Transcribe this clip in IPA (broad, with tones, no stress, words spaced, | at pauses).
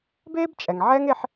beː˥bt͡ʃʼɛ˩ŋ ʕɛ˥ŋe˦ħ